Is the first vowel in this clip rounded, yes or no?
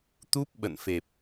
yes